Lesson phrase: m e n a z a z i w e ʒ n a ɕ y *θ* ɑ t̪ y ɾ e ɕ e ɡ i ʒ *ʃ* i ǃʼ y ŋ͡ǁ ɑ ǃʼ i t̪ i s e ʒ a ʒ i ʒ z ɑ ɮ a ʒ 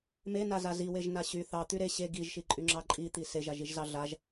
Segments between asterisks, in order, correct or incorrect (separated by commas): correct, correct